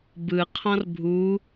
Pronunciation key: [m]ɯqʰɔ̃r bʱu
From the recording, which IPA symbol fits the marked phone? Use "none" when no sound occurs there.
b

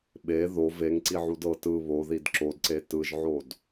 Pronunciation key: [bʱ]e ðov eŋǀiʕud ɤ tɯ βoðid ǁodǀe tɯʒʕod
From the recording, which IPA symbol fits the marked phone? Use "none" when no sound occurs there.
ɓ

